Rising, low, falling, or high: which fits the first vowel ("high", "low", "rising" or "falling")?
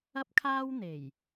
high